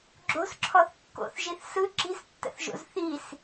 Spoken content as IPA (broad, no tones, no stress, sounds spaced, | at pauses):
ɡ͡ǁ o̤ s ǁʰ ɔ θ kː o̰ θ ʒ i θ s ɯ ǁ i̤ s tː ə̰ θ ʒ o̰ z θ i s